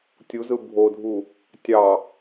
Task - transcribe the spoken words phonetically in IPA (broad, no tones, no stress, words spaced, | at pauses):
tʲuzɯ bʱodʱu | tʲɑ